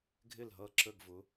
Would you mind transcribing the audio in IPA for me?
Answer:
ɡʱ ɪ˥˩ l ɦ ʌ˥˩ ǁ ə˥˩ ɡ v ʊ˩˥

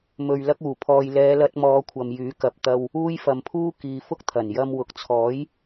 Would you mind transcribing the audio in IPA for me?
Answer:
m ɵ˨ ɥ l ɐ˥ k̚ uː˨˩ pʰ ɔː˧ j l ɛː˨˧ l ɐ˧ t̚ m ɔː˨˧ kʷʰ ɐ˨ m j yː˨˥ k ɐ˨ p̚ t̪ ɐ˧ w | uː˥ j f ɐ˨ m pʰ uː˥ k iː˨ f ʊ˥ k̚ t̪ʰ ɐ˨˩ n j ɐ˧ m w ʊ˨ k̚ t͡sʰ ɔː˨˥ j

